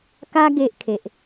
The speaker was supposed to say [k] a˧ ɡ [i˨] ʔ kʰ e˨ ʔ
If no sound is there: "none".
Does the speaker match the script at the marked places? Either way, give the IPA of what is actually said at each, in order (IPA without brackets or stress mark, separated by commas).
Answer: k, e˨